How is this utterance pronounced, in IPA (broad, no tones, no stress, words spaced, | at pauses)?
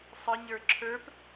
sˤəɲə˞ ǁʰə˞p